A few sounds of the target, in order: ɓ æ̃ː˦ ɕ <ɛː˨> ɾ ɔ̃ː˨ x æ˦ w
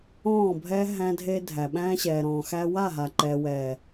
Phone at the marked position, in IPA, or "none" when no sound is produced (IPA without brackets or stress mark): ɛː˨